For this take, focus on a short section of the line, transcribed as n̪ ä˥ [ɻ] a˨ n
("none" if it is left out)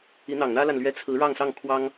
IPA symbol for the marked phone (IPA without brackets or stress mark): l